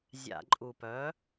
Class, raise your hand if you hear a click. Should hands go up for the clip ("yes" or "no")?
yes